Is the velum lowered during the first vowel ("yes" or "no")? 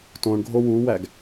yes